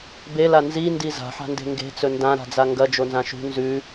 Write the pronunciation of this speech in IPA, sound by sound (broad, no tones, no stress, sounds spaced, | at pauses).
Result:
b e l a n z i n d i z a̤ ħ a̤ n d e̤ ŋ ɡ e̤ t͡s ɵ n d ã ɾ a̤ d͡z a ŋ ɡ ɐ d͡ʒ o n z ã ʃ ṳ n z ʉ